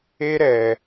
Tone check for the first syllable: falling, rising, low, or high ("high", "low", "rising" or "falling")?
high